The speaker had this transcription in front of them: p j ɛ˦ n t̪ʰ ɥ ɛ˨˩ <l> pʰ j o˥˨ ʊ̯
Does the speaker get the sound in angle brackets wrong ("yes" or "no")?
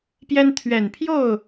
yes